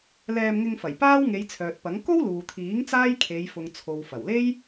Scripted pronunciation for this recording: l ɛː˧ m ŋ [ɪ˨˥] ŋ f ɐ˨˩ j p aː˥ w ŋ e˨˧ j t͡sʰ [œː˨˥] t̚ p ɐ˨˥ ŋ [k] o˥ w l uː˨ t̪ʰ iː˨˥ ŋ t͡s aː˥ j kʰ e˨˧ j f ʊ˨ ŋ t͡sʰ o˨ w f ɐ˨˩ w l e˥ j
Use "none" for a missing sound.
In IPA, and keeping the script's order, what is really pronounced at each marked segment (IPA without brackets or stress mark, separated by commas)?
ɪ˧, œː˨, k